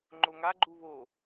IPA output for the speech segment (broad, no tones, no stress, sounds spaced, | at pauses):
ŋ͡ǃ o ŋ a ɡ͡ǃ u β o